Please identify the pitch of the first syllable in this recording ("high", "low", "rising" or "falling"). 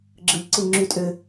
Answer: low